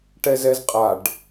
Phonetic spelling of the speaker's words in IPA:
ʈ ɛ z ɛ z qʼ a ɖ

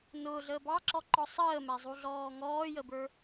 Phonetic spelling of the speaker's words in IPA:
n ʊː ɮ əː b ɑ ǁ ɔ ǃ ɔ sˤ əː m æ zˤ u ɮ ɔː ŋ ɔː j ə b ə˞

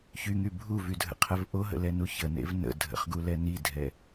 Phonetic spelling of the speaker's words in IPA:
ç y ŋ y bʱ u v y dʱ ə̰ qʰ ɛ v ʔ o ɦ ə̰ l ɛ n u ç ə n ḛ v n ə̰ dʱ ə̰ χ ɡ u l ɛ n i dʱ ɛ

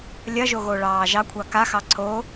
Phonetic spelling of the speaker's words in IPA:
lʲ ɐ ʒ o ɣ o ɭ ɑː ʒ ɑ kʷʰ ɑ k a x ɑ ǀʰ o

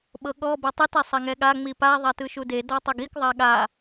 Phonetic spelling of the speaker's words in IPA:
ɓ ɤ ɠ ɔ b ɤ tˤ ɯ t ɛ sˤ ɛ ŋ ɛ ɠ a ŋ͡m i p a ðˤ a t ɯ ʃ u d e d ɔ tˤ o ɡ i k ðˤ a ɠ a

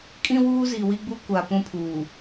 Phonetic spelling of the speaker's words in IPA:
kʼ ĩ˦ w uː˦ z iː˨ w i˦ ɡ͡b u˦ kʷ a˨ p ũ˦ pʰ uː˨

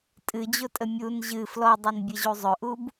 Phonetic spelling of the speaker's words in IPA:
tʼ ɨ d͡ʑ ʊ tʼ ə mʲ u n ʑ ɨ f l ɔ dˤ ɨ n bʲ ɨ ʑ u zˤ ɵ ʔ u b

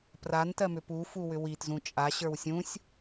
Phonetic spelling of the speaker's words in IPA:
p r a n t ɜ m ʏ p u f u w ʏ w i t z ũ t͡ʃʼ a ɕ ə˞ w sʲ ũ sʲ

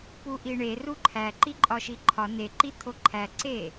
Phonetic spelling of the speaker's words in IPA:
p u ʔ i ɳ e r u ǃʰ æ ǃ i ǃʼ ɒ ʃ i ǃʰ ɒ n e ǃ i t̪ʰ o ǃʰ æ ǀ e

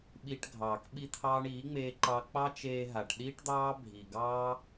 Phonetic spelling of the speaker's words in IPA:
ɓ i˧ ʈ ɡʱ ɑː˨ k ɓ i˦ t̪ʰ ɑː˦ ɳ iː˨˦ ŋ͡m eː˧ ǃ ɑ˧ k͡p ɑ˦ t͡ʃ eː˧ ɦ a˨ ʈ ɗ iː˦ ʈ d̪ ɑː˦ bʱ i˨ ɡ ɑː˦

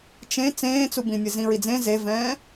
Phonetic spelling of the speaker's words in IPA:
t͡ʃ ẽ t͡s ẽː t͡s u b ĩ mʲ ɘ z ĩ ɹ i d͡z ẽ z e v ɛ̃ː

